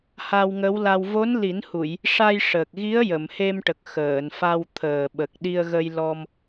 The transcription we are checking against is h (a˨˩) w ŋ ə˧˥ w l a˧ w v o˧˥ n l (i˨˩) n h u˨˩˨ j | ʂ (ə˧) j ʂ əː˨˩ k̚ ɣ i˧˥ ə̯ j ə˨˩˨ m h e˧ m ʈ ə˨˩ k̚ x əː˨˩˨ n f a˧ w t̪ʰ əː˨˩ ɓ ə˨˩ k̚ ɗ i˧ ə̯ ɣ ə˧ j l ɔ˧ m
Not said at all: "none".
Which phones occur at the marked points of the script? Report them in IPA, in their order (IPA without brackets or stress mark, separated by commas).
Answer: a˧, i˨˩˦, a˧